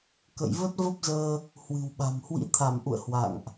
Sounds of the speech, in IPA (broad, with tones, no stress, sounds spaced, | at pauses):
k ə̰˧˨ j v ə˦˥ t̚ v ə˦˥ p̚ z əː˧ | h w ɨ̤˨˩ w ɓ a̤˨˩ m h w ḭ˧˥ t̪ʰ a˧˩ m ʔ ṵ˧˨ ə̯ h w a̰˧˨ ŋ ʔ